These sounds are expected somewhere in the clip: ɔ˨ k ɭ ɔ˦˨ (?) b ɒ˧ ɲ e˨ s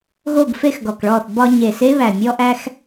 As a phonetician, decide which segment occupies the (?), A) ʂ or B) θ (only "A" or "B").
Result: B